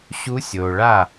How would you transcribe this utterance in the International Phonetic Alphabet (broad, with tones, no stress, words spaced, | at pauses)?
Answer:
ɕu˧˥sʲoː˩ɭa˥˩